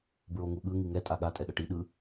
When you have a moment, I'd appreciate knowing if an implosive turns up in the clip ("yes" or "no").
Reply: yes